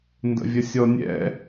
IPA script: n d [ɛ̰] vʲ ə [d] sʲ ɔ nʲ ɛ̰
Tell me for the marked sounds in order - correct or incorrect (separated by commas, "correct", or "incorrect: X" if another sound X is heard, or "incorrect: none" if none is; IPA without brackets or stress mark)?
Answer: incorrect: ə̰, incorrect: none